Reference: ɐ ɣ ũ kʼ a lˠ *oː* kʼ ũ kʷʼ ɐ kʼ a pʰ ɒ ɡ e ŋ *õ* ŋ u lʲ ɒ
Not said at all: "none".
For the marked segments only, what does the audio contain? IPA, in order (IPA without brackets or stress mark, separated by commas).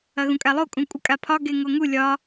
o, o